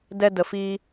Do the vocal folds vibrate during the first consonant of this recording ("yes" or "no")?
yes